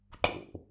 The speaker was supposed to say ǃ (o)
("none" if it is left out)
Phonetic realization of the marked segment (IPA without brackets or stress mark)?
o̰